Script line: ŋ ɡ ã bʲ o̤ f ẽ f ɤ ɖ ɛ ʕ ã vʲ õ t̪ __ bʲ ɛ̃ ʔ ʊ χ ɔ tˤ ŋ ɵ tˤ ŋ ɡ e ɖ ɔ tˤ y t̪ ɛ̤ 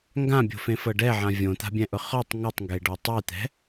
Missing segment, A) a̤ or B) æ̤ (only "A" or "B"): A